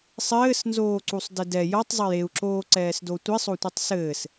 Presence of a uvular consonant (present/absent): absent